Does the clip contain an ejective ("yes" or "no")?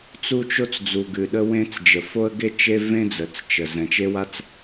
no